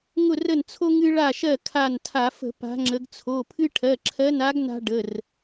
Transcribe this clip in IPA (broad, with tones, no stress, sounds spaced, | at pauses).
ŋ ʊ˦˨ r ə˦˨ n t͡sʰ o˦ ŋ ɨ˦ ɭ a˦˨ ʃ ɜ˦˨ kʰ a˦˨ n tʰ a˧˩˧ f ə̤˧˩˧ p a̤˨˦ ŋ͡ǁ ə˨˦ ɡ t͡sʰ o˩˧˩ pʰ ɨ˦ ʈʰ ɜ˩˧˩ ǁʰ ɜ˨˦ n a˨˦ ɡ n a̤˦ ɖ ə˩˧˩ r